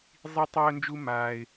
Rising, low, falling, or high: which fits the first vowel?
high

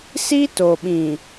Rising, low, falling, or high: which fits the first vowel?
high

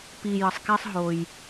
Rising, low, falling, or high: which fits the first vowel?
low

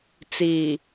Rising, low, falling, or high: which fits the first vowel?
low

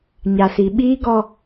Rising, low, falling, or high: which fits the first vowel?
low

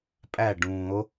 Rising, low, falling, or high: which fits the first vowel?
falling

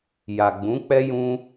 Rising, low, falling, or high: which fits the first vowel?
low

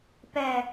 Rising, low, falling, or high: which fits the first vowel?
low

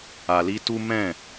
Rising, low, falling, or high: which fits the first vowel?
low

